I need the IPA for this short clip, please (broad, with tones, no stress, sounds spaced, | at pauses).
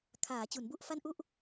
kʰ aː˩˦ t͡ɕ u˩˦ n b u˥˩ ʔ f a˥˩ n ʔ u˥˩ ʔ